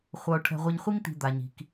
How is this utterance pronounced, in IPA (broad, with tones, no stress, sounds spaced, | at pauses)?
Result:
χʷ ʌ˨ ʊ̯ ʈʰ ɛ̤˨ ʁʷ i˨ ɲ χʷ i˧ ŋ t̪ i̤˨ d̪ a˨ ɲ i̤˨ k